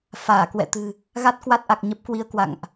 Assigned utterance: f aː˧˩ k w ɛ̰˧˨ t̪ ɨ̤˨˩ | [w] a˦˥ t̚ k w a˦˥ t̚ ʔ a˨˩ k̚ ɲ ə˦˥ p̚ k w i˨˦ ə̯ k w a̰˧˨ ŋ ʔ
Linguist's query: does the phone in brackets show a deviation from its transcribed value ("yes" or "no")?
yes